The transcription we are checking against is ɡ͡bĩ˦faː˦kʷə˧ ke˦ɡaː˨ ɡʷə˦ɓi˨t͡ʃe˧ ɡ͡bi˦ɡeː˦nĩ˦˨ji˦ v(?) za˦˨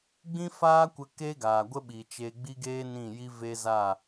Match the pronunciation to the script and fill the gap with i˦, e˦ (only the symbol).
e˦